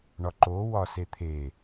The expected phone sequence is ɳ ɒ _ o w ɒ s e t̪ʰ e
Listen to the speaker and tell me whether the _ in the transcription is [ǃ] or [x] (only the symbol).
ǃ